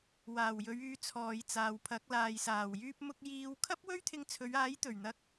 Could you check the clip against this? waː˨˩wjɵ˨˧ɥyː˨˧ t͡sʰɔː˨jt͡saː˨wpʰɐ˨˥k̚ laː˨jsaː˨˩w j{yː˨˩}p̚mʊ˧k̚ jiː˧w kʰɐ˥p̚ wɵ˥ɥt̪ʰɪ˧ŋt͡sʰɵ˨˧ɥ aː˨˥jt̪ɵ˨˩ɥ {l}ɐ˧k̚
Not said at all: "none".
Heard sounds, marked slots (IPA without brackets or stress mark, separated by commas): yː˧, n̪